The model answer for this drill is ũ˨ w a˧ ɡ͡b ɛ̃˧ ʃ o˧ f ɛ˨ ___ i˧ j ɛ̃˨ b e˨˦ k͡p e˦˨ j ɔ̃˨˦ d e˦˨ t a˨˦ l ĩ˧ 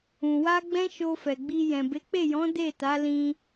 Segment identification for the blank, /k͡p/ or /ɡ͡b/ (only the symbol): ɡ͡b